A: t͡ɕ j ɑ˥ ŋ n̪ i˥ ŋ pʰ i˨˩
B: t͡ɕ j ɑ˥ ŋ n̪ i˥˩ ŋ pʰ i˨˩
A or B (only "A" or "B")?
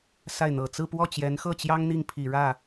B